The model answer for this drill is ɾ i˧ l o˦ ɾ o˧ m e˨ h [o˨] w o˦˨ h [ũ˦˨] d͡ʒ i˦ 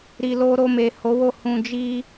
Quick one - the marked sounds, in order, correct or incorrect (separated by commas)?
incorrect, incorrect